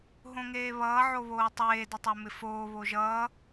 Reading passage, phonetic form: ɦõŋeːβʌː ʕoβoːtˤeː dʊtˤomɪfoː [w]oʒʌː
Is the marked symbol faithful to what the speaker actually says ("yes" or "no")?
no